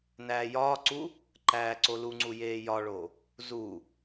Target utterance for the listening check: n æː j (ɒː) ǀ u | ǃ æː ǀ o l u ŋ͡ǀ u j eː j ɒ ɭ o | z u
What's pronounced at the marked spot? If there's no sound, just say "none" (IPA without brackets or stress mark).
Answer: ɒː